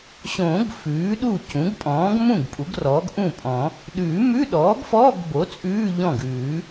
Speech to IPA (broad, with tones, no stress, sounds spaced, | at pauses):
ɕ õː˨˩˦ ɡ f ʉː˩˥ ɗ u˥˩ c ũ˩˥ ɡ pʼ ɔ̃ː˩˥ ɡ m ũ˥˩ ɡ pʼ u˩˥ ɡ r ɔː˩˥ ɡ ʔ ũ˥˩ pʼ ɔ̃˨˩˦ | ɗ ʉː˨˩˦ m ʉ˧˥˧ ɗ ɔː˩˥ ɡ f ɔː˧˥˧ ɡ b o˩˥ t͡sʼ ʉː˧˥˧ ʎ ɔ̃˥˩ ɡ ʉː˨˩˦